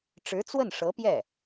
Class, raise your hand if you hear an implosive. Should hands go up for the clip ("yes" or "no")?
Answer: no